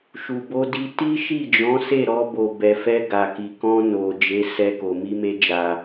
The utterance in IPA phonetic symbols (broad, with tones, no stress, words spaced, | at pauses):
ʃu˨bo˧di˧ ti˦ʃi˦˨d͡ʒɔ̃˨˦se˦˨ ɾɔ˧bo˨bɛ˨fɛ˧ ɡa˨ki˨ kɔ̃˧no˨ d͡ʒe˨˦sɛ˧ko˨ mi˧me˧d͡ʒa˨